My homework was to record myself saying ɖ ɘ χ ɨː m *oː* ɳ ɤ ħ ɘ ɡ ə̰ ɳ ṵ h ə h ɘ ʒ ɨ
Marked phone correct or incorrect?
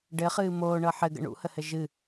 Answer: correct